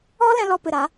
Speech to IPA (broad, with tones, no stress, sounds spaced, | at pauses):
ɔ˧ l ɛ̃˦ l ɔ˧ p ɨ˨ ɾ a˨˦